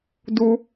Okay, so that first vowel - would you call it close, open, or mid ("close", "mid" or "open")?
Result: close